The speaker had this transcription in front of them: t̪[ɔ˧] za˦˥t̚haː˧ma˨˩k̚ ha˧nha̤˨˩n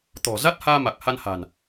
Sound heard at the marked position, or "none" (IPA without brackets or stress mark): ɔ̤˨˩